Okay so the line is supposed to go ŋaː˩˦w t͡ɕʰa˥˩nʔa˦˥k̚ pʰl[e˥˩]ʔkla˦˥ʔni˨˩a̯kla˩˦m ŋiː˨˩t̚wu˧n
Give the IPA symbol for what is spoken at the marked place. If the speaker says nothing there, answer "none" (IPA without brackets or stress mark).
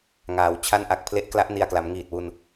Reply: e˦˥